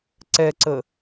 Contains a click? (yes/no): yes